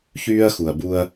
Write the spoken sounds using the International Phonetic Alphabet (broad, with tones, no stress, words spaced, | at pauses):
çyː˦ɐ̯xu˨ɐ̯bu˦ɐ̯